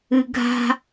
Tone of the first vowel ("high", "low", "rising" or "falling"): low